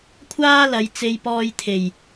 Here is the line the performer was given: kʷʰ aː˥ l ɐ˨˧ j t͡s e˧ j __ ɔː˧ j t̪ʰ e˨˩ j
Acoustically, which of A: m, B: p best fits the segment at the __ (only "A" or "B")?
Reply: B